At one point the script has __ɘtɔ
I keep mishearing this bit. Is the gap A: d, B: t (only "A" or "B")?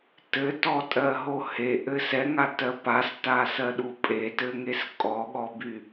B